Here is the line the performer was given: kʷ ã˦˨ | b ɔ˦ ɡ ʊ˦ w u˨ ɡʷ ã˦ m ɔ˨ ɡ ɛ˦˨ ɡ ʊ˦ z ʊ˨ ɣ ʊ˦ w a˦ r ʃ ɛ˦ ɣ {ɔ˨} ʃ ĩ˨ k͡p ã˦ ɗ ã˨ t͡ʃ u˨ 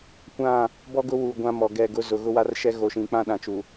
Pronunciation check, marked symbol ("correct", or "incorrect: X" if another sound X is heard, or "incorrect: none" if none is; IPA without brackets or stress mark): incorrect: o˨